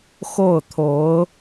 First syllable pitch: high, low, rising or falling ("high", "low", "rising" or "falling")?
falling